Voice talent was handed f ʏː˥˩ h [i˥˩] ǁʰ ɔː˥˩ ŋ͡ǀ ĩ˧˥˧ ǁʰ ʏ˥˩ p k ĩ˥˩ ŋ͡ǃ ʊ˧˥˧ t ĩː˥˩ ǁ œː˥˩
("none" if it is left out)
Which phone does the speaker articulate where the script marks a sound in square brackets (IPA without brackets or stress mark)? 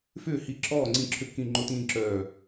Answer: i˥˩